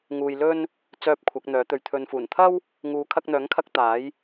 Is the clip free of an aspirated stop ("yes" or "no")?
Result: no